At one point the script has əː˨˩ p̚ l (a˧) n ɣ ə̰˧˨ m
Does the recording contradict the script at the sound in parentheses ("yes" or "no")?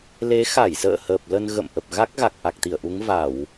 yes